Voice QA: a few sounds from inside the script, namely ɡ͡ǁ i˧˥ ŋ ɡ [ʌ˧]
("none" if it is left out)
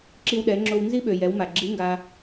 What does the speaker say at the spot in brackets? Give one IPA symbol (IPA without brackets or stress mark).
a˧